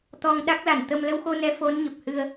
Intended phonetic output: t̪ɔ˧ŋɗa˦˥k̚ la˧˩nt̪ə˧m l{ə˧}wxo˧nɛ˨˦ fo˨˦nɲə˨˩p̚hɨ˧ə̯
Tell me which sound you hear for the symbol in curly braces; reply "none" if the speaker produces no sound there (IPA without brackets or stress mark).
ə˧